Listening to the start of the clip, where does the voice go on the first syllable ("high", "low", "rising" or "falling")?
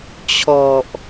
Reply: low